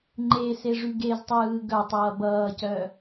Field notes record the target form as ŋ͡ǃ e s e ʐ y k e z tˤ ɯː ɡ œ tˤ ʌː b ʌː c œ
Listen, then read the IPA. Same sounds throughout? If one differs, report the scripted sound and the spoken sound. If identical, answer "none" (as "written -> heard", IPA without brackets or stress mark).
k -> ɡ